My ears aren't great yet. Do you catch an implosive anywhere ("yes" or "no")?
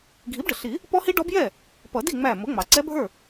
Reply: no